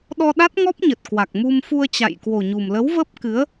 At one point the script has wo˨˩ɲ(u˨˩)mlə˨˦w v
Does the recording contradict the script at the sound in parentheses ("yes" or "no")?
no